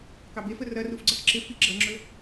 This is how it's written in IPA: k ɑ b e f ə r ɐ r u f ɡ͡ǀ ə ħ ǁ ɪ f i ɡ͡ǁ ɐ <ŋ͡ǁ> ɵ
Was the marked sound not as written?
no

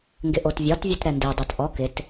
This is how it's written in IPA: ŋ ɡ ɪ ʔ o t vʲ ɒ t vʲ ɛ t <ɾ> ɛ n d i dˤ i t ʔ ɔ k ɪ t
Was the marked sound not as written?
no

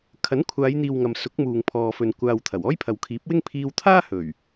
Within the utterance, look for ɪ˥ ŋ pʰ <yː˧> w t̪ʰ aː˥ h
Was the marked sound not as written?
yes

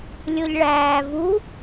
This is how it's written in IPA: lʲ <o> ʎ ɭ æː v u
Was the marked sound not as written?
no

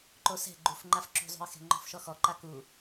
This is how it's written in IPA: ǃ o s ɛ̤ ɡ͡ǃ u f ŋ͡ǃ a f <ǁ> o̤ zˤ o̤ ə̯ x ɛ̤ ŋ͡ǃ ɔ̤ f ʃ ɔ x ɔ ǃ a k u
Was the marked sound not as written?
no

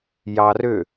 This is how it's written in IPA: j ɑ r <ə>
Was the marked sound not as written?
yes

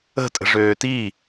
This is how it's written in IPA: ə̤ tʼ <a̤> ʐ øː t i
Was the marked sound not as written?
yes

